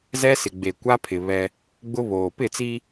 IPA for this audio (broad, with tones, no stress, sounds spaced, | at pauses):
z ɛ˦ s ɪ˨ ɡ͡b e˨ kʷ a˦ pʰ ɪ˨ β ɛ˦ | ɡ͡b ʊ˦ β oː˨ p ɪ˦˨ t͡s i˦